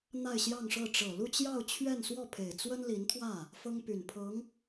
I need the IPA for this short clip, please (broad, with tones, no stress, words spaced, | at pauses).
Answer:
n̪a˥˧ɪ̯ɕjɑ˥˧ŋʂɤ˥˩ ʈ͡ʂɤ˨˩lu˥˧t͡ɕjɑ˥˧ʊ̯ t͡ɕʰɥɛ˥˧nswɔ˥˩pʰe˨˩ɪ̯ t͡swə˥nli˧˥nt̪ʰwä˥˩ | fɤ˥ŋpy˨˩npʰɤ˧˥ŋ